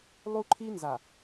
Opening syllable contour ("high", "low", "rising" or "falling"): high